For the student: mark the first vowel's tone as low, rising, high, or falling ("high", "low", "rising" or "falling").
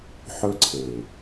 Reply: high